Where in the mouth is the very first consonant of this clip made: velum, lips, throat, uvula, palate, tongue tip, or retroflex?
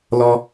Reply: tongue tip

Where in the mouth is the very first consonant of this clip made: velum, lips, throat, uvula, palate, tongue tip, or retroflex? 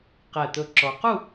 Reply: uvula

